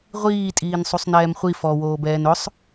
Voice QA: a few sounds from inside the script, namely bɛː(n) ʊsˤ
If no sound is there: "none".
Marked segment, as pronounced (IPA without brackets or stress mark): n